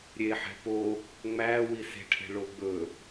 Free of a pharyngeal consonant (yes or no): no